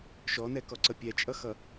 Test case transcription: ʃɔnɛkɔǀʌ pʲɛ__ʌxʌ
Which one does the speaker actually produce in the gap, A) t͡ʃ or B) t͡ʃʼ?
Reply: B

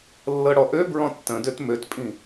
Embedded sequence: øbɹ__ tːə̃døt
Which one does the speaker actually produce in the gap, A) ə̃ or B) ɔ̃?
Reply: B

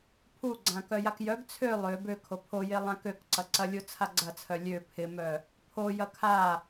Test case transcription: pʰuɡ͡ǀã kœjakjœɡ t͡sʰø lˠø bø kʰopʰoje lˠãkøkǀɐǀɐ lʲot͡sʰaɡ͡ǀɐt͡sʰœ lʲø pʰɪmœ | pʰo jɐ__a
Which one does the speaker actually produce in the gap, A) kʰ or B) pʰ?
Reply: A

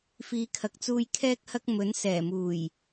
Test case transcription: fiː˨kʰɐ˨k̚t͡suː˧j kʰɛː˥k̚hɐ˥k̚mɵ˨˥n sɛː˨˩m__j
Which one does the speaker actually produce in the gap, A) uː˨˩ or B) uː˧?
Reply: A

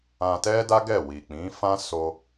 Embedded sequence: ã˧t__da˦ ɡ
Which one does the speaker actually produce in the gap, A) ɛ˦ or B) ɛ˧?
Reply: A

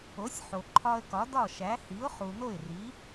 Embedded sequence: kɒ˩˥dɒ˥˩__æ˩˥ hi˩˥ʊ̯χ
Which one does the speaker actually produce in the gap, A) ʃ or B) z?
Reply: A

